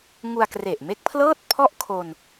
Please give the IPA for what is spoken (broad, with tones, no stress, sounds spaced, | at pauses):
ŋ u˧ a̯ k r e˨˩ ʔ m e˦˥ k̚ pʰ l ɤː˥˩ t̚ pʰ ɔ˥˩ ʔ kʰ o˧ n